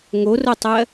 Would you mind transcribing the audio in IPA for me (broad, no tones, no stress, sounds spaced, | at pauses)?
ŋ o r o tˤ ɜ